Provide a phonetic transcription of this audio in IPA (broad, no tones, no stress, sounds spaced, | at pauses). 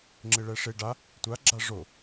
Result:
ŋ͡ǁ ɪ ɭ ɛ ʂ e ɖ a | tʷ a ɡ͡ǁ a ʐ o